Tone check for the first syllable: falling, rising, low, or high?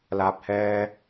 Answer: low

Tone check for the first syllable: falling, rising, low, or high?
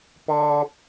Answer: high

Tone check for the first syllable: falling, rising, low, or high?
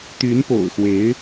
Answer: rising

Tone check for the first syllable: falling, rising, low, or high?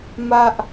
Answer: high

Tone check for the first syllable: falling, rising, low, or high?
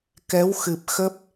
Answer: rising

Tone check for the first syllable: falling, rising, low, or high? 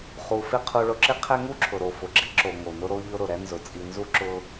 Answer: low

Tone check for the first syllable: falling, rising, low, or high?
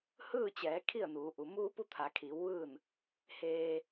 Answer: falling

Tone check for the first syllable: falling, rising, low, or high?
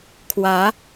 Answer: rising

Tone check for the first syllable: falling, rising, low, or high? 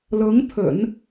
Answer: rising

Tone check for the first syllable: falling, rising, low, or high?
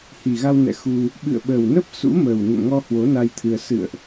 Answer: low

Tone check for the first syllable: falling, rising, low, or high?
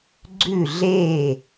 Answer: falling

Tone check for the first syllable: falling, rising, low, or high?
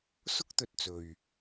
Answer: high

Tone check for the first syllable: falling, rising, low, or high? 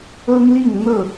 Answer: high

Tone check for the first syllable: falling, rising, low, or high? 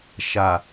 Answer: low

